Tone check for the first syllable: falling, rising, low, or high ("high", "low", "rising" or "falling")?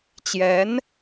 rising